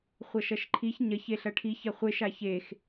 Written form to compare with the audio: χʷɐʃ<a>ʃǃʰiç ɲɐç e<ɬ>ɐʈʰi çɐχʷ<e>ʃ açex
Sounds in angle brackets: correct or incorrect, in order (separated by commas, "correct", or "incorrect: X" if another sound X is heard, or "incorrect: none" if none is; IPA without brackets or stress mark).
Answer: incorrect: ɐ, correct, correct